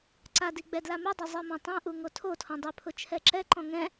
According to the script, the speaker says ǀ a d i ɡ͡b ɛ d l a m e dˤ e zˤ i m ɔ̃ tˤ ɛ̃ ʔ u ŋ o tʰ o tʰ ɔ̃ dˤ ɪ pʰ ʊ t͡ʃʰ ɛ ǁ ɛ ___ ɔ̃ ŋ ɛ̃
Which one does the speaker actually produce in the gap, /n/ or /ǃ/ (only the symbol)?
ǃ